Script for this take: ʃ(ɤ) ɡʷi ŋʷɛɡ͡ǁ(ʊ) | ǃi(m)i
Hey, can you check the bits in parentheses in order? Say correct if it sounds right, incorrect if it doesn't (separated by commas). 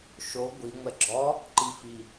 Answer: incorrect, incorrect, incorrect